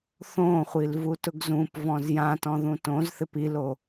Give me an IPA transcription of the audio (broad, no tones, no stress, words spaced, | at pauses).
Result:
θõχʷil vutʊɡzũp vɔ̃zjãtɔ̃ ðũtõzθɪp ilo